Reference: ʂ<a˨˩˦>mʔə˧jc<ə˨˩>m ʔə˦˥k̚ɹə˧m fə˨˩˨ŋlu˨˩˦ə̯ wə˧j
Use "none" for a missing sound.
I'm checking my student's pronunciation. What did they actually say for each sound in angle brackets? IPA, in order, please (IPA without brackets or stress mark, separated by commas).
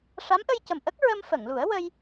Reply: a˧˥, ə˨˩